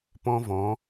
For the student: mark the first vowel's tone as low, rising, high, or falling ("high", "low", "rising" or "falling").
high